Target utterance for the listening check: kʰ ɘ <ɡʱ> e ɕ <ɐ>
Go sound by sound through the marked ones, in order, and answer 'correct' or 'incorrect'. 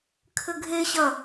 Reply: correct, correct

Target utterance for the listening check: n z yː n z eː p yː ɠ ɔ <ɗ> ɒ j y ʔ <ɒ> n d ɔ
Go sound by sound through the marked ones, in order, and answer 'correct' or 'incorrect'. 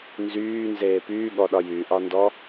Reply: correct, correct

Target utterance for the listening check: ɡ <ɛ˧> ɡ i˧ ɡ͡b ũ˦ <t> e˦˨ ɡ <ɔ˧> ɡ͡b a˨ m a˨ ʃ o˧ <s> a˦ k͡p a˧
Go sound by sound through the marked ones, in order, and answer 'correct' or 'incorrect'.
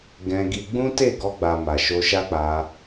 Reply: incorrect, correct, correct, incorrect

